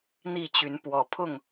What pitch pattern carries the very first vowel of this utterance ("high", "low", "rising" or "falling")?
falling